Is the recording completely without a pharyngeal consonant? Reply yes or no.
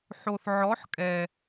no